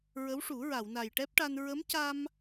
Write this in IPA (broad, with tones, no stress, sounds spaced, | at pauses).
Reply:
ɹ ə˧˥ w ʂ u˨˩˦ ɹ a˨˩˨ w n a˨˩ j ʈ ɛ˦˥ p̚ ʈ a˧ n ɹ ə˧˥ m c a˧ m